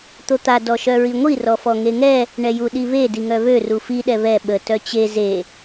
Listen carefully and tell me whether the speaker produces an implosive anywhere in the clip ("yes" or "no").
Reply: yes